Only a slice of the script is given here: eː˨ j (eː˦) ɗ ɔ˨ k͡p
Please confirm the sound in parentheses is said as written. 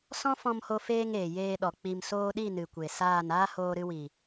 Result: no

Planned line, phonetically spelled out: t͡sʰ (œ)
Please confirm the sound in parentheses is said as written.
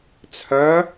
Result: yes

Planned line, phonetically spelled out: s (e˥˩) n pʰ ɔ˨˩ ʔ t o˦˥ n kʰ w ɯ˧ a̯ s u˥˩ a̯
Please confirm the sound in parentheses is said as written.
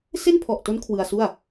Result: yes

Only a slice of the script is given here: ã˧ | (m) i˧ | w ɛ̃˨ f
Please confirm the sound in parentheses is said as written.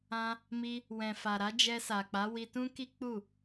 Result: yes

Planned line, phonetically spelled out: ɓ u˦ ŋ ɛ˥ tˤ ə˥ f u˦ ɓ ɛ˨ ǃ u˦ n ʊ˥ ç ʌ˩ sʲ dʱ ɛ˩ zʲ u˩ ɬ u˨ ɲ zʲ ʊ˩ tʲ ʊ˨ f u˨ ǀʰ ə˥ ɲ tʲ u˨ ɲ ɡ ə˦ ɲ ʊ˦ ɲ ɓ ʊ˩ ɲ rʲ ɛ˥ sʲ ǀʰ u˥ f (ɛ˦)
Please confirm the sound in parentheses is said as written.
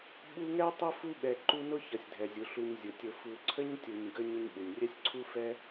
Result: no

